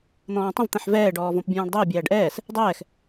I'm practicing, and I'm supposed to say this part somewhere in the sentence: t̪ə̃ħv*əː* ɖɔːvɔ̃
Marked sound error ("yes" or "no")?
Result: yes